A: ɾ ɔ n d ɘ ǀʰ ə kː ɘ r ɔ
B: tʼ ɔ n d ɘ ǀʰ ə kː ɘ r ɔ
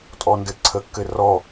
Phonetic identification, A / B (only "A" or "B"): B